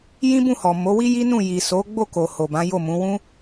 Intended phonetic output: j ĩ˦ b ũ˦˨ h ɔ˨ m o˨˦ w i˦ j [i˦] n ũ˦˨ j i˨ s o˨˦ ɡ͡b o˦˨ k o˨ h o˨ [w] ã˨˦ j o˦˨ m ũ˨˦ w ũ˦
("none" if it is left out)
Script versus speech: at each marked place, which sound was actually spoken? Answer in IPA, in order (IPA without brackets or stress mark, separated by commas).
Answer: i˦, b